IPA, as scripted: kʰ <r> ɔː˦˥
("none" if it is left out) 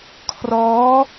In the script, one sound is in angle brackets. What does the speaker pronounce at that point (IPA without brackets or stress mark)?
r